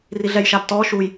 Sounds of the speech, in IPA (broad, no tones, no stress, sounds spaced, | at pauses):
r i ɮ ɛ j ʃ a b t ɔ ʃ u j